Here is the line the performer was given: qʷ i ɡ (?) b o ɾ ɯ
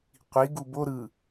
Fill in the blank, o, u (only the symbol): u